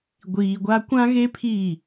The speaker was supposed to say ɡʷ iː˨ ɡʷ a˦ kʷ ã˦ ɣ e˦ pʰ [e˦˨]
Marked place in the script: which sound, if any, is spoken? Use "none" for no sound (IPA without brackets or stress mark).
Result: i˦˨